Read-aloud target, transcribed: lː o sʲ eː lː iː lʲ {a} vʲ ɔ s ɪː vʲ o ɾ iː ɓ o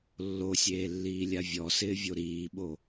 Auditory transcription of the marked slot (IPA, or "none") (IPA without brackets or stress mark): a